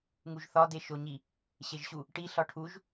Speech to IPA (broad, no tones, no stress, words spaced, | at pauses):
ŋuʒθɒ deʃoɲi | ɕeʒɕu | ʈi ɬɒʈʰuʒ